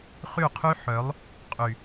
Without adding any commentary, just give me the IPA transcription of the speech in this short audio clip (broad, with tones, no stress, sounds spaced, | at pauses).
χ y˦˨ qʰ y˦ ħ œ˨˦ lˠ | qʼ y˨